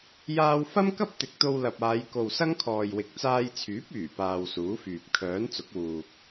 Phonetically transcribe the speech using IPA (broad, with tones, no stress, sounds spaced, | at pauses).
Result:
j aː˧ w f ɐ˥ m k ɐ˥ p̚ t̪ ɪ˨˥ k̚ t̪ o˧ w l ɐ˨ p̚ aː˨˧ j k o˨ w s ɐ˥ ŋ kʰ ɔː˨ j w ɪ˨˥ k̚ t͡s aː˧ j t͡sʰ yː˨˥ p̚ yː˨˩ p aː˨ w s uː˨˥ f yː˨ p̚ kʰ œː˨˥ n t͡s ʊ˨˥ k̚ w uː˧ k̚